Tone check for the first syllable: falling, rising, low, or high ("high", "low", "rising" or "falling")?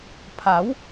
rising